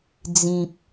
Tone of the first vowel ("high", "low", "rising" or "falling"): low